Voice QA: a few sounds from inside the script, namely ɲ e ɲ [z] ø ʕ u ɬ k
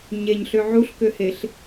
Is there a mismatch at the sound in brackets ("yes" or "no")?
yes